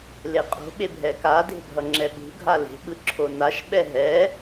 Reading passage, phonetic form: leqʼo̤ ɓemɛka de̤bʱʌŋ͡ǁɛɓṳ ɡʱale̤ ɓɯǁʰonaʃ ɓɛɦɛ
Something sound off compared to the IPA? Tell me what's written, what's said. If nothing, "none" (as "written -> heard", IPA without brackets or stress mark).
m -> bʱ